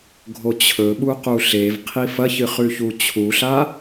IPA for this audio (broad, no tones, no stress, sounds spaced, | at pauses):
ɡʱ o t͡ɕʰ ɵ ɓ u q u ɬ e v qʰ i f ɐ ç ɨ χ ʉ ç u t͡ɕʰ u ɬ a